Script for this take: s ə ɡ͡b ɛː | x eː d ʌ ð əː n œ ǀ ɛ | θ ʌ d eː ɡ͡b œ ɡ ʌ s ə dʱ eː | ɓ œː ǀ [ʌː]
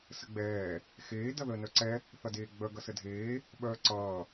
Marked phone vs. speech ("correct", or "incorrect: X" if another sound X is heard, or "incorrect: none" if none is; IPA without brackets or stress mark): correct